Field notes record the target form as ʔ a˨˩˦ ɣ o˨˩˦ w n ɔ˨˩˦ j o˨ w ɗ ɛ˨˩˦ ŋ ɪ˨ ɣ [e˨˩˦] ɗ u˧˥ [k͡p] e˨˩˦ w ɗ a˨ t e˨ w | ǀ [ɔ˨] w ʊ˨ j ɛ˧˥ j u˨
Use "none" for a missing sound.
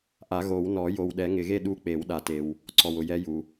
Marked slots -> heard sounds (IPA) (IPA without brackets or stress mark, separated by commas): e˥˧, k͡p, ɔ˨